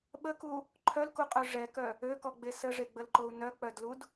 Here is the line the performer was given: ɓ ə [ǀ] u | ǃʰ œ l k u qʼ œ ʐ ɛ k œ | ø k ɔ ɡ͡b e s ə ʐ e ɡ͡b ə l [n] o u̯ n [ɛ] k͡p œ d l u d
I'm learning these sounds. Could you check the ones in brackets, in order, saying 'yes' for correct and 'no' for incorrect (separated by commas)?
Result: no, no, no